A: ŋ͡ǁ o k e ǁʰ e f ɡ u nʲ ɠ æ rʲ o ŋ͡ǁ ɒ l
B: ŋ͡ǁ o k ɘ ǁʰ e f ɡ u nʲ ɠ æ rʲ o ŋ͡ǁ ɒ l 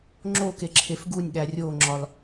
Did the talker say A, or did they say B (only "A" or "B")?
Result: A